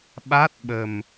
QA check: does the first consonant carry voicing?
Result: yes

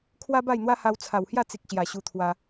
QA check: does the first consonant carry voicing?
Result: no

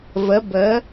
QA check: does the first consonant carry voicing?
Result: yes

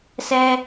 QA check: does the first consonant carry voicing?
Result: no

